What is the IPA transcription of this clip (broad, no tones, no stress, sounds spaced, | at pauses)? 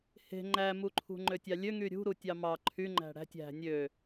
h e̤ ŋ͡ǃ æ m u ǃʰ ṳ ŋ͡ǃ ø tʲ ɑ lʲ ø ŋ y ɾʲ ṳ ɾ u tʲ ɑ m ɑ ǃʰ y ŋ͡ǃ æ̤ ɽ æ̤ tʲ æ̤ nʲ ø